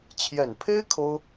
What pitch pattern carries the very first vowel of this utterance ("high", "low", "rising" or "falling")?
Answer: low